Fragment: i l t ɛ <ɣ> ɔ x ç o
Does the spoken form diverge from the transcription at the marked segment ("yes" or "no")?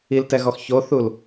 no